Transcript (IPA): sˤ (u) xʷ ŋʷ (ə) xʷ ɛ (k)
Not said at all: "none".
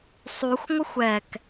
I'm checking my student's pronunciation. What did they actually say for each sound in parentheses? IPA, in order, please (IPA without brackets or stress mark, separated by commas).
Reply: u, ə, k